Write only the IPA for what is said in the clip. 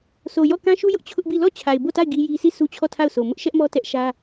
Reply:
sʰo˨jɔ˦˨kã˦ ʃu˦jʊ˦ʔ t͡ɕʰʊ˦ʔbi˦˨ lɔ˦˨ t͡ɕʰa˨ɪ̯bo˦˨ta˦˨ɪ̯ ɡi˦ji˦ sʰi˦˨ sʰu˦t͡ɕʰɔ˦˨tʰa˦˨ʊ̯so˨ mʊ˦ʔʃɛ˦ʔmɔ˦ tɛ˦ʔ ʃä˦

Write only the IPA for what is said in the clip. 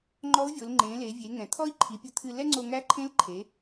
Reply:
ŋ͡ǃɔ˧˥u̯vʲo˩˧l ŋ͡ǃẽ˩˧le˩˧vʲe˩˧ ŋɛ̃˩t̪ʰɔ˥i̯ǃʰi˩˧pʲu˧ t̪ʰɨ˧ lɛ˥ŋ͡ǀo˧ ŋæ˧˥ǃʰẽ˧˥lǃʰe˩˧

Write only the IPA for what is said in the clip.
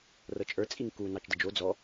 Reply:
rɤt͡ʃʼə˞ t͡sʼiŋku nɑt͡ʃdəd͡ʒo d͡zɔ

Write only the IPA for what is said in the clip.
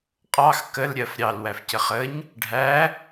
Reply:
qʼɑx kəlɾʲɜf ɾʲɑlwæfcə χəɲ | ɖʱæ

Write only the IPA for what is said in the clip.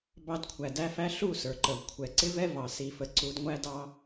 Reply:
bɑ˧dkʷʰæ˨dæ˦fæ˦ ɬu˦˨sə˞˨ǃə˨v kʷʰɛ˨ǀɪ˦vɛ˦vɑ˨ si˧fə˧ǀu˦d ŋʷæ˦dɑ˦

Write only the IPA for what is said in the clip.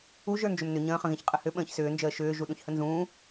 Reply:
uʒ ə˞nd͡ʒʏmnʏ ɲə̃ːχə̃ɣẽç qʼəhʏ ɓə̃ːçsʏːnd͡ʒəː ʃʏː ʒuɗũçhənzũː

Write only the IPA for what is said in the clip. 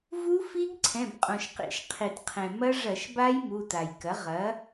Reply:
vu˦˥fi˦˥ɡ ǀʰɛ̃˩˧˩bqʼõ˩ʃqḭ˧˩˧ʃ qʰi˩t qʰɛ̃˩ mɐ˦˥ ʐɐ˧˩˧ʃba˦˥j mu˩˧˩ta˩jkɐ˩˥ ʁɐ˩˥

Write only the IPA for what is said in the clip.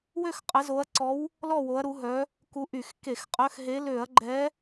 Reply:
wø˥˨xqʼə˨˦zo˨˦ɐ̯ ǀɔ˨˦w | lɔ˥˨wo˨˦ɐ̯ɾu˨˦ ɦœ˨˦ | ku˨˦ʔy˧˩˧x ke˧˩˧xqʼœ˨˦xɦe˨˦ lø˧˩˧ɐ̯ɡ͡ǃɛ˨˦

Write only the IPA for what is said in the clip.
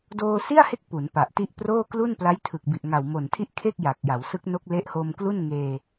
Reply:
doː˧si˥˩a̯he˦˥k̚ pu˩˦npa˨˩ʔti˦˥ʔproː˥˩ klu˥˩npla˦˥jtʰɯ˨˩k̚ bi˨˩ʔŋa˨˩wmo˨˩ntʰi˥˩ʔ kʰe˥˩k̚ja˨˩k̚ ja˩˦wsɯ˦˥k̚no˦˥k̚ le˦˥ʔhoː˧mklu˥˩n ŋeː˧

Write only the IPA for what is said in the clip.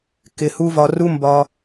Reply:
kɪ˧hu˦vɒ˧ ru˦mbɒ˧

